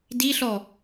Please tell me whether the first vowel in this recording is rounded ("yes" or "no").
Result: no